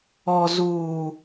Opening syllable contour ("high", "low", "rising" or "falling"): low